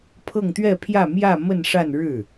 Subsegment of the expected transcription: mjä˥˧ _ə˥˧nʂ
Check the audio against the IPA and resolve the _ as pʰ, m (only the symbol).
m